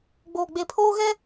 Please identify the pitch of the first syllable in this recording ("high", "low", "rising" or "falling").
low